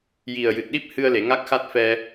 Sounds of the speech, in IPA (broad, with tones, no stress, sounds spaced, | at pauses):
j i˨˩ ə̯ j ɨ˨˩ t̚ ɗ i˦˥ p̚ h ɨ˧ ə̯ l e˨˩˨ ŋ a˦˥ k̚ x a˦˥ t̚ f ɛ˧